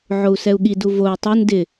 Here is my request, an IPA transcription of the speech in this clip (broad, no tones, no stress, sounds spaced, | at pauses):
ʕ o u̯ s ɛ u̯ ɠ i d u v o u̯ tˤ o n d ɪ